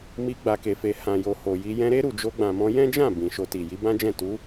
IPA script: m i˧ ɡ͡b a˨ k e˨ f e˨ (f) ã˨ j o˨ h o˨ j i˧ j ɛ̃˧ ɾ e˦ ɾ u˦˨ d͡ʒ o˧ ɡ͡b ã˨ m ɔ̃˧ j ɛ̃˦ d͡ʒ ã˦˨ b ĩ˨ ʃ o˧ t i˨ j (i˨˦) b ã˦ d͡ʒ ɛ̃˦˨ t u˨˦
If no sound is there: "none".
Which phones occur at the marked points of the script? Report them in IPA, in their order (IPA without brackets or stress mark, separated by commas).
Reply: h, i˨˦